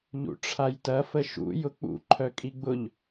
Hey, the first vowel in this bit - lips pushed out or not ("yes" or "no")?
yes